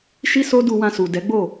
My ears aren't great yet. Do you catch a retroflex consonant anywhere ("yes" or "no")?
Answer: no